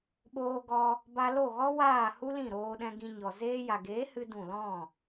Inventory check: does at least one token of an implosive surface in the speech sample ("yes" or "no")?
yes